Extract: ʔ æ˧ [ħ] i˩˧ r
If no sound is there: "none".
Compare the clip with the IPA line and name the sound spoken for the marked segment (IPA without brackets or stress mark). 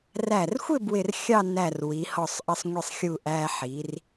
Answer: ħ